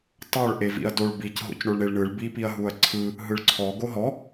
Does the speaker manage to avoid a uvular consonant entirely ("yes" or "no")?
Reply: yes